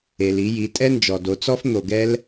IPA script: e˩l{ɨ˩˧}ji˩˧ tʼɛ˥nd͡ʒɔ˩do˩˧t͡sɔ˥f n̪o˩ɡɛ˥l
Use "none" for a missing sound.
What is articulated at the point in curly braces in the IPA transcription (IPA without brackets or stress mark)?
i˩˧